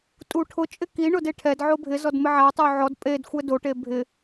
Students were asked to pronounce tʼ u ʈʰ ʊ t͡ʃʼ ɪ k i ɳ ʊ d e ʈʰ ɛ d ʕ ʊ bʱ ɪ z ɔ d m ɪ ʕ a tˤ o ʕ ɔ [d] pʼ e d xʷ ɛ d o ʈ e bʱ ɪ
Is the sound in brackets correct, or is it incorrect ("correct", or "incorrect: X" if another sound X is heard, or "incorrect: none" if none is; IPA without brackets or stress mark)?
correct